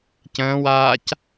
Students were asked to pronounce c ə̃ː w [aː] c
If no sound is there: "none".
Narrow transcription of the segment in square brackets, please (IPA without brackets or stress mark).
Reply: aː